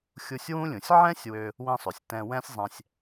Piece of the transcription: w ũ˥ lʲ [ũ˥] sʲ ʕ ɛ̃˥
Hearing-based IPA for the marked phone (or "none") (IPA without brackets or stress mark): ũ˩